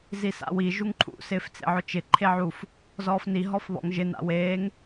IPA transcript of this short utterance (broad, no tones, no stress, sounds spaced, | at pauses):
z i s a̰ w i ʒ u ŋ ǃʰ ṵ s ɪː f t͡s ḛ ʕ ʊ t͡ʃ ɪ ǃʰ e ʕ u f | z ɔː f n i ɦ ɔ f β ɔ̰ ŋ ʒ ɪ n a̰ w eː ŋ